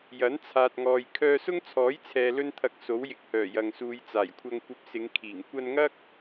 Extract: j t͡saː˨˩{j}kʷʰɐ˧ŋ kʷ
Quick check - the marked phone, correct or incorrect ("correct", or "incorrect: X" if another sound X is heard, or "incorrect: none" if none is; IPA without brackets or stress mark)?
correct